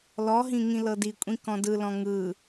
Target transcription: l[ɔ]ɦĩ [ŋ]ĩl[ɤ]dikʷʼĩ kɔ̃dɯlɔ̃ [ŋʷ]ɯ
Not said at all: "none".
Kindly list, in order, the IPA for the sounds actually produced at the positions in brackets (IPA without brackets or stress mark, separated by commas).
ɔ, ŋ, ɤ, ŋ